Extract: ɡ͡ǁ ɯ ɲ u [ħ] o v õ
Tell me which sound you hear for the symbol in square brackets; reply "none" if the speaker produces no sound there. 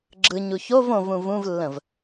ç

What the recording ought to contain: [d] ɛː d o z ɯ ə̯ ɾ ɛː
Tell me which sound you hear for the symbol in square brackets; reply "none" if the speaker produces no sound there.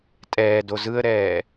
tʼ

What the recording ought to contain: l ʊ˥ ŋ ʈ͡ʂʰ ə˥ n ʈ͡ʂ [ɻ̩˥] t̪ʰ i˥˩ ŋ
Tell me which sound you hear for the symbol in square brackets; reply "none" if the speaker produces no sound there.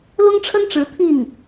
ɻ̩˧˥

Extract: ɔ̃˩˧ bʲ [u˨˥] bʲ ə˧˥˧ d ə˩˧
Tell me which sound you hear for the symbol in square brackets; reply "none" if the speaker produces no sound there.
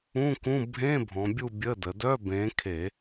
u˦˨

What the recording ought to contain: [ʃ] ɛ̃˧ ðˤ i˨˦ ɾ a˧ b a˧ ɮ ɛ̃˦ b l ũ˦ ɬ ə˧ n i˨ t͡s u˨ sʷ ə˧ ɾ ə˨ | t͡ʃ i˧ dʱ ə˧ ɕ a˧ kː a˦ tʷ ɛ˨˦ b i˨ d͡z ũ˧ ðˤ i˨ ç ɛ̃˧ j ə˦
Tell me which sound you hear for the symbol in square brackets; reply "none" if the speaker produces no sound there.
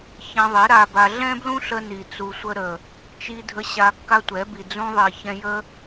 ç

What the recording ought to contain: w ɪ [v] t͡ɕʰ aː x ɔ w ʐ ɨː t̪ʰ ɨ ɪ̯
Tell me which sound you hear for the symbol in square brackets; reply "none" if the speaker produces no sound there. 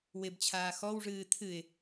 b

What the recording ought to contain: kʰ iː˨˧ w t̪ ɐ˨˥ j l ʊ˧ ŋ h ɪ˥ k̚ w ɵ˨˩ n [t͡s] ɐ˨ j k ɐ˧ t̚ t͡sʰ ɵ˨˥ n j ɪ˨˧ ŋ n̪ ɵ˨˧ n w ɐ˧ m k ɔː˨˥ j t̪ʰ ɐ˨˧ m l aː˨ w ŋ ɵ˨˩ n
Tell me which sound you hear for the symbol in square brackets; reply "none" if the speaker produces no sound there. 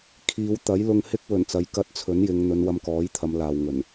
t͡s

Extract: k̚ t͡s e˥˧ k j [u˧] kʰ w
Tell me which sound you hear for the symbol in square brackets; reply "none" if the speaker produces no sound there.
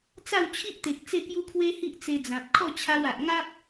u˦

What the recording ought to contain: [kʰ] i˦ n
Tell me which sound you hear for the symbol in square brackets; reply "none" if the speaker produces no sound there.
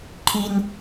kʰ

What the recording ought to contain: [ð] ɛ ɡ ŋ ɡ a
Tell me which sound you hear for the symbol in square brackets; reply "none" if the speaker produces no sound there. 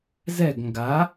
z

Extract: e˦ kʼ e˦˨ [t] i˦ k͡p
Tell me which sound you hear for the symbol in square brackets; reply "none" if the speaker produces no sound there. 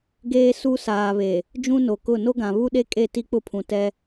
t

